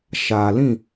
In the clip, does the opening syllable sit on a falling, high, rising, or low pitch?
low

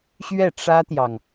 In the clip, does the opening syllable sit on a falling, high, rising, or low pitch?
falling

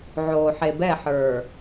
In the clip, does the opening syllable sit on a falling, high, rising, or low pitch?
low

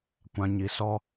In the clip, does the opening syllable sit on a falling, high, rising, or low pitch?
low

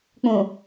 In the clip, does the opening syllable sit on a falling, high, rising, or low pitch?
low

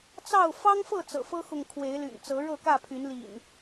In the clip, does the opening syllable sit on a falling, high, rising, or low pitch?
falling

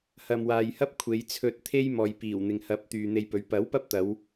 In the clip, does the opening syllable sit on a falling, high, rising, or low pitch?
low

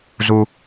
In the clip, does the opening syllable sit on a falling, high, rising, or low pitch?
low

